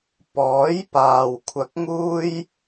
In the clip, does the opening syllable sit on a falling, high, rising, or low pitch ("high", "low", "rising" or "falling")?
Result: rising